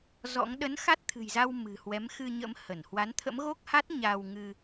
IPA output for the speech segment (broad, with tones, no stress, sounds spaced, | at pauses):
z ɔ̰˧˥ ŋ ɗ ə˨˦ n x a˦˥ t̚ t̪ʰ ɨ̤˨˩ j z a˧ w m ɨ̤˨˩ h w ɛ˨˦ m x ɨ˧ ɲ ə̰˧˥ m h ə˧˩ n h w a˨˦ n t̪ʰ ə̰˧˥ m ɣ o˦˥ k̚ h a˦˥ t̚ ɲ a˧ w ŋ ɨ˧